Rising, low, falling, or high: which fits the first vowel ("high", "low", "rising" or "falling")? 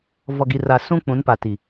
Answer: low